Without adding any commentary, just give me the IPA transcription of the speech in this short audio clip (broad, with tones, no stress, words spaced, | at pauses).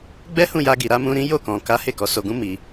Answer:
ɡ͡bɛ˦hũ˦˨ja˧ ɡi˨ɾa˨˦mũ˧ɾĩ˦ jo˦˨kɔ̃˨ ka˨˦ he˦˨kɔ˨˦so˧ɡũ˦ mi˧